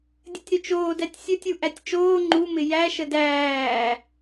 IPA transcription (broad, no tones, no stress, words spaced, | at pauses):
dʲətʲɾʏt͡ʃoː dætʲsʲɵtʲu ʔætʲt͡ʃoː ŋ͡ǃumɪ jæʃə dæː